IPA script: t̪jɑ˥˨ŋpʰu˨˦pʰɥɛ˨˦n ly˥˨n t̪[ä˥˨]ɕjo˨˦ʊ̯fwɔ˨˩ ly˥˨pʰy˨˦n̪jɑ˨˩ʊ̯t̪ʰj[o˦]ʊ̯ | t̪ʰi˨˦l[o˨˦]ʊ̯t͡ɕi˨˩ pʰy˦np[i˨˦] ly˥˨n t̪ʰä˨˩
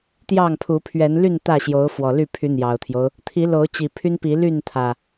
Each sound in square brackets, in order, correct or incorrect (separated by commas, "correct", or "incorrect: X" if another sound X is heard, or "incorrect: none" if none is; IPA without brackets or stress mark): correct, correct, correct, correct